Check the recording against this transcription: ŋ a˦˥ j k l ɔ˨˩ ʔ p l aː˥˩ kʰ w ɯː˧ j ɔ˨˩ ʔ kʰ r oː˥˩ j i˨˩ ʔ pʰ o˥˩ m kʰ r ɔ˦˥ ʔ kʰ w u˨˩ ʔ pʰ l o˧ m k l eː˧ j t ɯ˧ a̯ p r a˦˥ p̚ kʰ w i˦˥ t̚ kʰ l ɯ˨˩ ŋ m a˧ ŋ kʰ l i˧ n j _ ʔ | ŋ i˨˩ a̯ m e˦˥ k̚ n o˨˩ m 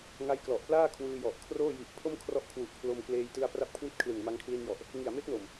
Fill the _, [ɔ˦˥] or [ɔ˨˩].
ɔ˨˩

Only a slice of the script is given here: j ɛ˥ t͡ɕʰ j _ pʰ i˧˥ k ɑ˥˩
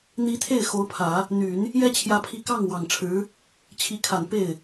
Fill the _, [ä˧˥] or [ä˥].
ä˧˥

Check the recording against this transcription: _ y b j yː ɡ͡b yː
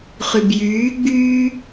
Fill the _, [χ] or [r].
χ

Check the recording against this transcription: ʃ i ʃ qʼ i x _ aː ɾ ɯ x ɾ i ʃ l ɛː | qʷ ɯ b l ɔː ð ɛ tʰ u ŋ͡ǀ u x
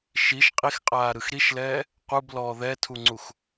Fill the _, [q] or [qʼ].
qʼ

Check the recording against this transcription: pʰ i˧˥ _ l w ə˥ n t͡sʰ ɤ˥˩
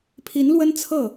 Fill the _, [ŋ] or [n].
n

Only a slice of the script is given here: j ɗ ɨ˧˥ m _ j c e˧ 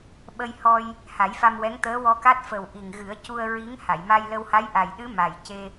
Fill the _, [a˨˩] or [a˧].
a˨˩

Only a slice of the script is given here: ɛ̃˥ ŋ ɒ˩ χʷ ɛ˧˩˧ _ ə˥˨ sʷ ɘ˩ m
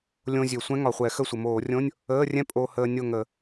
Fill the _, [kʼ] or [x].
x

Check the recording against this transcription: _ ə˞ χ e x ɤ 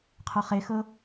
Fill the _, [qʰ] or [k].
qʰ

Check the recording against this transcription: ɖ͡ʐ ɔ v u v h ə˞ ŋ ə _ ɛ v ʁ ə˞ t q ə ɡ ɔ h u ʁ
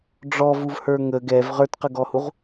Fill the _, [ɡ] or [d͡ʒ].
ɡ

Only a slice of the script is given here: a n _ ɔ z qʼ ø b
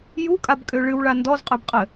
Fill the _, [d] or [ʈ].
d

